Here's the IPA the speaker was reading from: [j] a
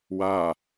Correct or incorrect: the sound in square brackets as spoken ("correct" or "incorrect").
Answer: incorrect